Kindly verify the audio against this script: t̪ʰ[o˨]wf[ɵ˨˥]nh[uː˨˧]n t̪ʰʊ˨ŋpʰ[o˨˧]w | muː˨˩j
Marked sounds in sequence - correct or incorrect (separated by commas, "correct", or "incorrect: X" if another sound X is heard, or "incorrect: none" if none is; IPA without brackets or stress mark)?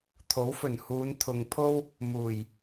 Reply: incorrect: o˨˥, incorrect: ɵ˨˩, correct, incorrect: o˥